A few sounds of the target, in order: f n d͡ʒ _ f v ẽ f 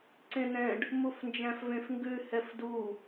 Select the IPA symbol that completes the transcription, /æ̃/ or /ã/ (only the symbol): æ̃